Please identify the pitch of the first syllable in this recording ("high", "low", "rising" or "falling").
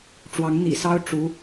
rising